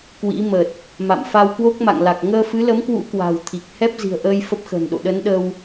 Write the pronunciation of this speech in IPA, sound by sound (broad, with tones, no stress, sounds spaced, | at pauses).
k w ḭ˧˥ m ə˨˩ t̚ | m a̰˧˨ m f a˧ w k w o˦˥ k̚ m a̰˧˨ ŋ l a˨˩ k̚ ŋ əː˧ f ɨ˨˦ l ə˨˦ m k w ṵ˧˥ k w a̤˨˩ w t̪ʰ i˨˩ k̚ h ɛ˦˥ p̚ z i̤˨˩ ə̯ ʔ əː˧ j f ə˦˥ p̚ x ə̤ː˨˩ n ɗ o̰˧˨ ɗ ə˨˦ n ɗ ə˧ w